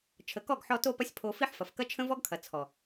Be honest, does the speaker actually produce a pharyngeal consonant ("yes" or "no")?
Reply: yes